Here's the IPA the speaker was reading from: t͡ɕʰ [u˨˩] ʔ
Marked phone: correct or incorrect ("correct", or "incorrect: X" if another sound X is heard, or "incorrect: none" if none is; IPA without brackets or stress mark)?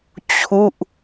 incorrect: u˥˩